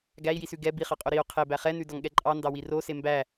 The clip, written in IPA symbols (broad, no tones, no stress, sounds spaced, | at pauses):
ɡ æ i̯ j i s ʉ ɡ ɛ b i χ ɑ qʼ o ɾ i u̯ qʰ e b æ χ ɛ n ʉ d ɔ ŋ ɠ ɛ ǃʼ ɑ n d ɑ w i r o s e m b æ